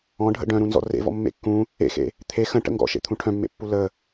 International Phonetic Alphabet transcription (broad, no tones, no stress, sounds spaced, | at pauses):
ɔ̃ ɖʱ ə̰ ɖ œ̃ ɾ ũ n z ɔ̰ r ḛ v ɔ̰ mː ḛ kː ũ | ḛ x ḛ | t̪ʰ e x ə̃ ʈ ə̰ ŋ ɡ ɔ̰ ʃ ḛ t̪ʰ ũ ʈʰ œ̃ mː ḛ pː u l ə